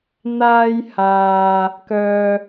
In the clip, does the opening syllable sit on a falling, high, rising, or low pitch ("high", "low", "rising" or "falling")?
high